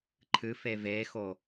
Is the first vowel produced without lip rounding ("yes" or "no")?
yes